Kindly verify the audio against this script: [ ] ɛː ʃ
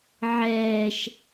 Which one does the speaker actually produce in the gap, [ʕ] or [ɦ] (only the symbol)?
ʕ